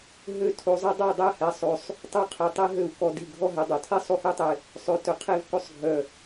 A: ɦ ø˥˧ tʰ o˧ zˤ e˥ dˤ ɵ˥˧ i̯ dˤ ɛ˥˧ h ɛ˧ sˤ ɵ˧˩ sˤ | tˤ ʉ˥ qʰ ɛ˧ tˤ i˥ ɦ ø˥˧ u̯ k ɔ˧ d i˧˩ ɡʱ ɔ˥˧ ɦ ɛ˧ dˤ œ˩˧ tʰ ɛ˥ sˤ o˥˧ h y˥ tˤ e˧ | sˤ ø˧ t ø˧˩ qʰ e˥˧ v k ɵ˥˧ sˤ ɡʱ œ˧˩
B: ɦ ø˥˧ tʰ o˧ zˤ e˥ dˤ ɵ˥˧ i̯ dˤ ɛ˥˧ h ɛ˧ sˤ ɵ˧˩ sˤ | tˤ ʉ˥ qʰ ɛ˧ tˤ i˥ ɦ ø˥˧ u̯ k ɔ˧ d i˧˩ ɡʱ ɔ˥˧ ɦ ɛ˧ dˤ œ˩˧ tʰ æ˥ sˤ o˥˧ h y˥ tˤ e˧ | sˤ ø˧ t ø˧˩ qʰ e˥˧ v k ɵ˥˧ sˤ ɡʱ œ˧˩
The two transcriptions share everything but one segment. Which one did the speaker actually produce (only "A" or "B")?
A